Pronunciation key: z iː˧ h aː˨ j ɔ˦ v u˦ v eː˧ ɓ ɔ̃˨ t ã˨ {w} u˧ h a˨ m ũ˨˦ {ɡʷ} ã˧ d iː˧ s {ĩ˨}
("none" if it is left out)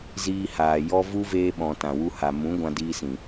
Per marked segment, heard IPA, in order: w, ɡʷ, ĩ˨

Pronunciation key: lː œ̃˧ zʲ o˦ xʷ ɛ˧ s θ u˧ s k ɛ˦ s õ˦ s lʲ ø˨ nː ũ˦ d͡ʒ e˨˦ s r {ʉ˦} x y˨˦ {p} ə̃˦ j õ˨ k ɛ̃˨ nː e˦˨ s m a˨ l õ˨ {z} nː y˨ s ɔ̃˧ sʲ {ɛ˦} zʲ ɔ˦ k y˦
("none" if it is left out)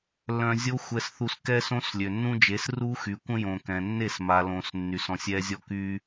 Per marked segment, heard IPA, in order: u˦, kʷ, s, ɛ˦

